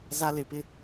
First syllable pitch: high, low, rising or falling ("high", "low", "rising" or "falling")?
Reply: high